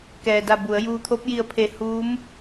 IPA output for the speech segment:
k ɛː˩ d a˧˩ b u˩˧ ə̯ j uː˧ t̪ʰ o˧˥ p̚ j i˧˩ ə̯ pʰ e˧˩ h uː˧˥ m

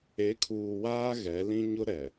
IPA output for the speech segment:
e˨˦ kʰ uː˨ w aː˦ ɣ ɛ˨˦ l ĩ˦ ɲ ʊ˦ ɾ ɛ˨

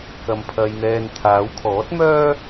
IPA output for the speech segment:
k ɐ˧ m pʰ ɐ˧ j n̪ ɛː˧ n t̪ʰ aː˨˧ w kʰ ɔː˨˥ t̚ m œː˥

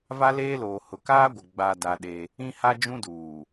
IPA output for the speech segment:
v a˦ l eː˦ l oː˨ h ʊ˨ k aː˦ ɡʷ ɪ˨ ɡ͡b a˨ d a˦ ɗ e˦ | ĩ˦ h a˦ d͡ʒ ũ˦ d uː˨

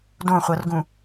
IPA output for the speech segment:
d õ χʷ ɤ r ɡ ũ

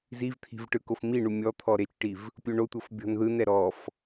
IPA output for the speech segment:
z i v t̪ʰ i̤ v ʈ ɯ k o f m i ɳ u mʲ ɔ t̪ʰ ɔ ɾ e t͡ʃ ʈ i v | pʲ o ɳ o tʷ ɤ f bʲ ɔ̤ n ð ɯ n ɛ ɾ ɔ f

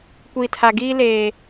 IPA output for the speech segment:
kʷ i˨ tʰ a˨ ɡ iː˦ l eː˨

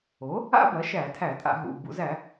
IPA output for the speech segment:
o˩˥ | a̰˥ b ɐ˩˥ ʃ æ˧˩˧ tʰ æ˧˩˧ tʼ a̰˧˩˧ ɦ ṵ˩˧˩ b ṵ˧˩˧ z æ˧˩˧

